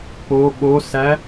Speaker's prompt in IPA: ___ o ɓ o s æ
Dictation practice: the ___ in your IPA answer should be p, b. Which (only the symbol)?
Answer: p